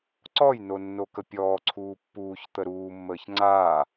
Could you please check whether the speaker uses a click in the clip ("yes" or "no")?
yes